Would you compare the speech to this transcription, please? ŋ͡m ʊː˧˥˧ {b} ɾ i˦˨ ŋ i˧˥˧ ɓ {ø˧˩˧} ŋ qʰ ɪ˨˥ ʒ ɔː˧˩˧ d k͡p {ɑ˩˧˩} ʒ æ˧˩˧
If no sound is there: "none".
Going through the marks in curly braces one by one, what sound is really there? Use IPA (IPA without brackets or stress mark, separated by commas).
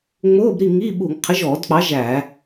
b, u˧˩˧, ɑ˨˥